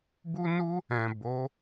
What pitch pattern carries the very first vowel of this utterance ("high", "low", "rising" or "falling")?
high